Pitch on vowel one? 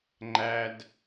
high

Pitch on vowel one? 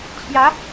rising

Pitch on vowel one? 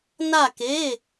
falling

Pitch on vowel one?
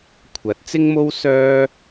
rising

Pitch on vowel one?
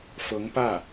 rising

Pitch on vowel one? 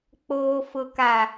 low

